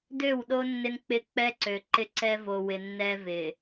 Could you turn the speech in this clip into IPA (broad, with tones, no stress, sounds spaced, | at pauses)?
d ø˦˨ w ɗ o˦ nː ɪ˦ n k͡p ɪ˦ k͡p ɛ˦ ǀ ø˨ ǃ ɪ˦ ǀ ɛ˦ v o˨ w ɪ˨ nː ɛ˦ v ɪ˨